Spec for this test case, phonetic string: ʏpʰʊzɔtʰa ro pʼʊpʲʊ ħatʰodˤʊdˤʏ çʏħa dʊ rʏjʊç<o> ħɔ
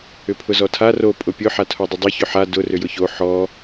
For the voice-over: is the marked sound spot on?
yes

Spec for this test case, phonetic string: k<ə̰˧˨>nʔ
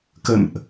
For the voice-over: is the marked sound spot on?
yes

